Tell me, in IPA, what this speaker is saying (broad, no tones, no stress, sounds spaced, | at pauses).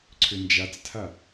ǀʰ ʏ n d͡ʒ a t͡s tʰ a